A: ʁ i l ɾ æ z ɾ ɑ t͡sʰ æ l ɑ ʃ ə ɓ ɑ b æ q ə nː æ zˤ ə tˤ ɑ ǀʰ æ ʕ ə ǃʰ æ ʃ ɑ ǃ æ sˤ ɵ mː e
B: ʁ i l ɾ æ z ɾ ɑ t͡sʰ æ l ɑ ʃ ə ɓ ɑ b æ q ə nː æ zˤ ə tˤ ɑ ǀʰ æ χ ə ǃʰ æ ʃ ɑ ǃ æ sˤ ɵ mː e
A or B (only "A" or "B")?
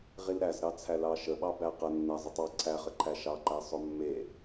B